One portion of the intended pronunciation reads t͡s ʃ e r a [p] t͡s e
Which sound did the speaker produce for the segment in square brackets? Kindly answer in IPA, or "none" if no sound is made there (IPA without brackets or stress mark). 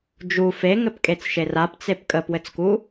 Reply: p